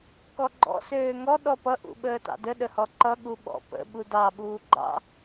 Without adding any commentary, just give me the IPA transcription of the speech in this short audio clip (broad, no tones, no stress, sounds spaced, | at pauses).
k ɔ ɡ͡ǃ ɔ̰ s øː ŋ ɔ ɗ ɔ p ʌ ʔ ṵ ɓ əː t ɑ̰ d ə ɗ ə h ɔ ǃ ʌ ɠ u ɓ ɔ̰ p ə̰ ɓ u d ɑ ɓ uː ɡ͡ǃ ɑ̰